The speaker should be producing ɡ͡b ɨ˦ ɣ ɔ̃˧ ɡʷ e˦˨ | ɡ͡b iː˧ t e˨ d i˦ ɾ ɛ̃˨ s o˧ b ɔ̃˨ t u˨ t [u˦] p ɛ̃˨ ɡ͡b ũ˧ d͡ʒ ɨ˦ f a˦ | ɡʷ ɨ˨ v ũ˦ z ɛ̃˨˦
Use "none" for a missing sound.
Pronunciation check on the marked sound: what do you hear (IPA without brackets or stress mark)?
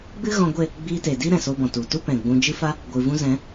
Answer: u˦